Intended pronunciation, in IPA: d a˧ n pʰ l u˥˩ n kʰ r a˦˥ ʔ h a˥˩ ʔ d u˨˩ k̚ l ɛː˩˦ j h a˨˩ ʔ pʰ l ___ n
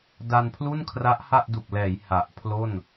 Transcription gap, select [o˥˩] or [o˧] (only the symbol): o˥˩